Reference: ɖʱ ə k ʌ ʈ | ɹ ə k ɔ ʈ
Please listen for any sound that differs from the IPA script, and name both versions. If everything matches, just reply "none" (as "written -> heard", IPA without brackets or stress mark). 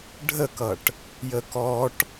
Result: ɹ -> j